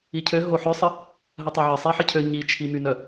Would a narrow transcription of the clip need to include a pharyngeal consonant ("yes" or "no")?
yes